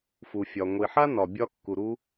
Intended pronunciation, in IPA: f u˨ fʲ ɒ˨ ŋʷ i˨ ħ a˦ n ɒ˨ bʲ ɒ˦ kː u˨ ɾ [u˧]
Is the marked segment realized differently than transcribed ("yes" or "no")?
no